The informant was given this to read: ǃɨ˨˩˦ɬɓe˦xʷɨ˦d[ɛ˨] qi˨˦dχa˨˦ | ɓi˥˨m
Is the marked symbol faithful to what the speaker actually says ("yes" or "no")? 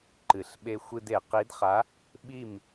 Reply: no